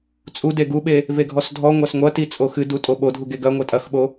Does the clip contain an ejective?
yes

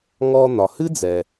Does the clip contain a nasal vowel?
no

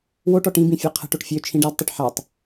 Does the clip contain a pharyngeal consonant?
yes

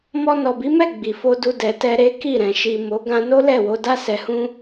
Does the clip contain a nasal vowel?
yes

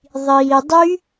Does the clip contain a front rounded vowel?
yes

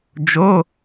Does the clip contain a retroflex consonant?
no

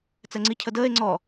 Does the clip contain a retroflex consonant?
no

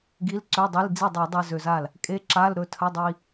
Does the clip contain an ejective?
yes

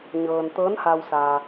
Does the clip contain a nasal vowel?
no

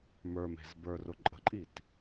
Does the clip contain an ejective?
yes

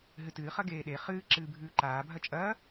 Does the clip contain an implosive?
yes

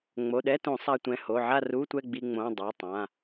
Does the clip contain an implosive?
yes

